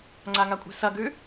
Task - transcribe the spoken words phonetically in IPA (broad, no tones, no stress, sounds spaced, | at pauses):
ŋ͡ǀ a ŋ a kʷʼ e̤ s ɐ ɡ ʉ